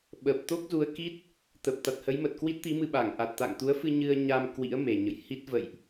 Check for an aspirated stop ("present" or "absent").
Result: absent